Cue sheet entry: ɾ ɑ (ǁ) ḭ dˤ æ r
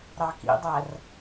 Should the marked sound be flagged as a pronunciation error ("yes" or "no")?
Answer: yes